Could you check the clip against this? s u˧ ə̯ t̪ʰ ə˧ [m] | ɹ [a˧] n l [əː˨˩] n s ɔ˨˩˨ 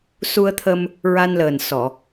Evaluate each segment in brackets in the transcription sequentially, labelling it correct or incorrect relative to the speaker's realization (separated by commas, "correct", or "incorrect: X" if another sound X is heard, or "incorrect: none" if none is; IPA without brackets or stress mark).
correct, correct, correct